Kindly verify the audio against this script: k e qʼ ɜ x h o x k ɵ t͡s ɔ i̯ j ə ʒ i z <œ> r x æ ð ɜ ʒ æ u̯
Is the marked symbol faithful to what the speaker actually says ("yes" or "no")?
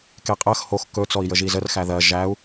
no